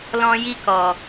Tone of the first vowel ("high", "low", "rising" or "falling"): high